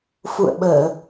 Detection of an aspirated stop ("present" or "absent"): absent